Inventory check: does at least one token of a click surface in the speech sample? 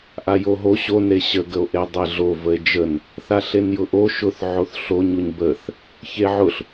no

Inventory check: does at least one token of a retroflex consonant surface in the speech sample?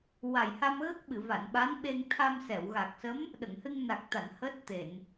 no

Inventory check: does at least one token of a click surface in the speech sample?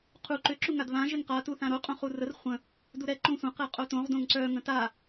yes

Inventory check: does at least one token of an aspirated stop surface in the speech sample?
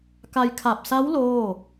yes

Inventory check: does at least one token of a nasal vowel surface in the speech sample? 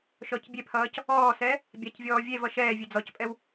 no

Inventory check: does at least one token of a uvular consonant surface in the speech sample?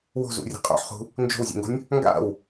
yes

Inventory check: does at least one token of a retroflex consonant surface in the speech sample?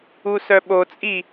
no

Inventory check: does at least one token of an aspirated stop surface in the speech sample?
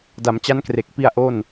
no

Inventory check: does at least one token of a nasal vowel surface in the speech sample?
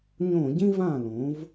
yes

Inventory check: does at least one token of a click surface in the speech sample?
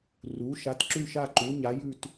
yes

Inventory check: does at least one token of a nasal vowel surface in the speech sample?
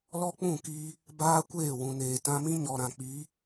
yes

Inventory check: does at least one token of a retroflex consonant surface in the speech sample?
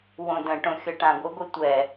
yes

